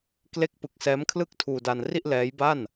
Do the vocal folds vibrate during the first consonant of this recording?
no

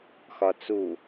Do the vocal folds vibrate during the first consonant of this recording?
no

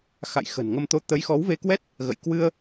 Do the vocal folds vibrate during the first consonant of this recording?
no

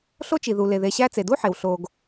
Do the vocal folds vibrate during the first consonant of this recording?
no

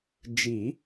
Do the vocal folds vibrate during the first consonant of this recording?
yes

